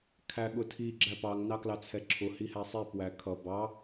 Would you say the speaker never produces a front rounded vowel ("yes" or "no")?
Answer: yes